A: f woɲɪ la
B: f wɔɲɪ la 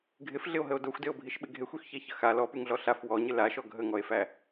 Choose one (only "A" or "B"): B